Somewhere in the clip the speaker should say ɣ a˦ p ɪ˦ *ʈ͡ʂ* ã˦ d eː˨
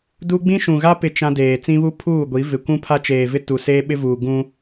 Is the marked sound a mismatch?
yes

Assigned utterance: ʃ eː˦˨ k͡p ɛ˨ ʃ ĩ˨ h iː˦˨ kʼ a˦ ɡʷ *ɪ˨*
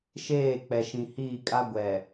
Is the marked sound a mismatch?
yes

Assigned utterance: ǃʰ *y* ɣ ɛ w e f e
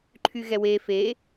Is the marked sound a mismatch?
no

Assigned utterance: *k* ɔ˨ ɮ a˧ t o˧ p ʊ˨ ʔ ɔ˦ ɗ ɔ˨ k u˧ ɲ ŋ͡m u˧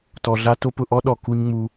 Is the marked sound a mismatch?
yes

